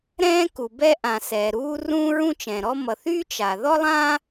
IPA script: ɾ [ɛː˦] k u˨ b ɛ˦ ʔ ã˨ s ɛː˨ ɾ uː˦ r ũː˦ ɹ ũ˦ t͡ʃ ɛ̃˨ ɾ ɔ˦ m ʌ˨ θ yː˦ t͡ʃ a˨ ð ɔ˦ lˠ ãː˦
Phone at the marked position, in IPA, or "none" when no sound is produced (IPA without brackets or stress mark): ɛ̃ː˦